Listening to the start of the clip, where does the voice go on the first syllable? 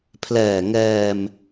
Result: low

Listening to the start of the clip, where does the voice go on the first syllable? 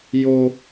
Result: high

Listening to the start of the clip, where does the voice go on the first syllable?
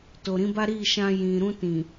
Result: low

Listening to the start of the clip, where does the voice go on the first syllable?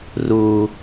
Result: high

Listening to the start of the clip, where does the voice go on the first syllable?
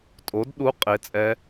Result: rising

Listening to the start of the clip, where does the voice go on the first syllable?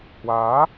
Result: rising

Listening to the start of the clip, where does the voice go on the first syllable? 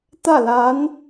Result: falling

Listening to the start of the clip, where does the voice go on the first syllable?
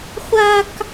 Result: high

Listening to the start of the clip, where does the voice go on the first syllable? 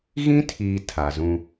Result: high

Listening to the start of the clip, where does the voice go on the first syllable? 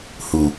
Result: low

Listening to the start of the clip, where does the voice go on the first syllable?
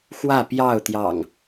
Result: falling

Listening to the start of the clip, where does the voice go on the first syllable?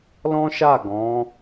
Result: high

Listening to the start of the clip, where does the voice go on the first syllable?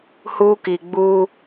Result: high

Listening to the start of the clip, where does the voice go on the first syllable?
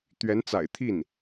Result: rising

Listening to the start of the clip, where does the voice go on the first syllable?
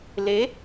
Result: rising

